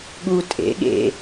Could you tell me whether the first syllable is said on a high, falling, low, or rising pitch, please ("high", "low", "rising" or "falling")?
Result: high